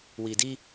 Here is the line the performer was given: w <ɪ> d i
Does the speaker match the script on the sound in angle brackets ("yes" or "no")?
no